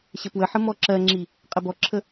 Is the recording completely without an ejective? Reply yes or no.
no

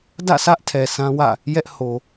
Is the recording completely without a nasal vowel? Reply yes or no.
no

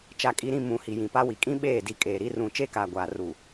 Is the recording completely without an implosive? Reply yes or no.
no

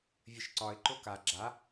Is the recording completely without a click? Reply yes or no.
no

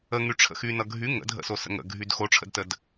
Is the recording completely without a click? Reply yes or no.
yes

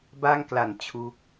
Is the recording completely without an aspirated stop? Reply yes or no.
no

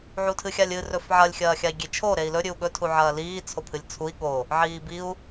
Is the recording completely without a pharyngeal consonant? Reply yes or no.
no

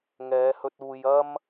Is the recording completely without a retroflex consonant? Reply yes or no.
yes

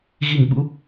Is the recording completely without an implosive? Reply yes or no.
no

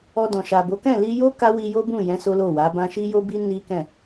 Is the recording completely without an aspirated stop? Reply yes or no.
yes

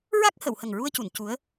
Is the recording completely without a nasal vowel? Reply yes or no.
yes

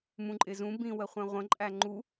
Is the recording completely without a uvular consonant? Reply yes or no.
no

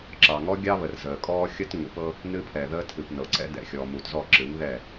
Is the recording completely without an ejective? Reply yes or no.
no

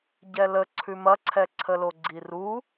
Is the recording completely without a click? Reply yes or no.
no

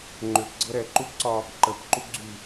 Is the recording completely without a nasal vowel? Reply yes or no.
yes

